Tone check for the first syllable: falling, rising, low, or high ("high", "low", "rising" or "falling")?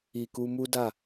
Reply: low